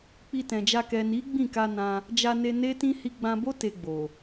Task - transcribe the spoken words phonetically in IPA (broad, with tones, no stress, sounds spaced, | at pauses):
k͡p i˧ t ɛ̃˨ d͡ʒ a˧ k ɛ˨ n i˨˦ ɡ͡b ĩ˦˨ k a˧ n ã˧ | d͡ʒ a˧ n e˧ n e˦ t ĩ˦ h i˧ ɡ͡b ã˧ b o˦ t e˧ ɡ͡b o˨